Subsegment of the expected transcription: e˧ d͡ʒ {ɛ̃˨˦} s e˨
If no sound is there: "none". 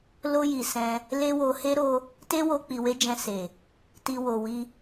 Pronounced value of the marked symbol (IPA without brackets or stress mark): ɛ̃˧